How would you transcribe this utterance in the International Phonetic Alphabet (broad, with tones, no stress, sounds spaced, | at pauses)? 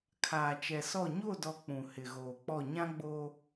kʰ aː˨ t͡ʃ ɛ˨ s ɔ˦˨ ɲ o˦˨ d ɔ˨ k͡p ũ˨ h ɪ˨ ɣ oː˨ k͡p ɔ˦˨ ɲ ã˦ ɡ͡b oː˦